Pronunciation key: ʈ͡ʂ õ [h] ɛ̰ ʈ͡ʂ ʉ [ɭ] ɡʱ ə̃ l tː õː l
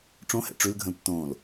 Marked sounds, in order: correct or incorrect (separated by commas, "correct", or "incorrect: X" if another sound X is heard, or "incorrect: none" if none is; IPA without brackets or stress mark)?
correct, incorrect: l